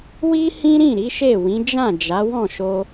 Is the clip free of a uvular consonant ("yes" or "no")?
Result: yes